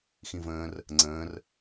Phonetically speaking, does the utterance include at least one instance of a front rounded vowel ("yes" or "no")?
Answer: no